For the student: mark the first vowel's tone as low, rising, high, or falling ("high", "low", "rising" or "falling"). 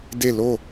falling